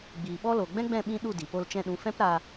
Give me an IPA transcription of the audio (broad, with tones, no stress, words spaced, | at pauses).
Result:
ɡ͡biː˨ɓɔ˦lo˨ ɡ͡bɛ̃˦ɡ͡bɛ̃˦˨ɓĩ˧ ɗu˦˨di˨po˧l t͡ʃɛ̃˧ɗũ˨˦ fɛ̃˦pɾa˧